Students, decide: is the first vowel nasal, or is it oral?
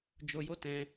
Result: oral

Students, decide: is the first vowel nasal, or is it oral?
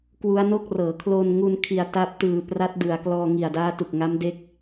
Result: oral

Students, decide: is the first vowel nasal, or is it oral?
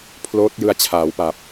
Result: oral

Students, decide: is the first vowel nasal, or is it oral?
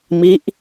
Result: oral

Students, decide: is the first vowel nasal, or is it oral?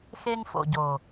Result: oral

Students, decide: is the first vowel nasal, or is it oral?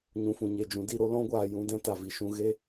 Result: nasal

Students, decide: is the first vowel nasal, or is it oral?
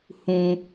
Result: nasal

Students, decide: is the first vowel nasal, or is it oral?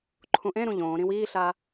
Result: nasal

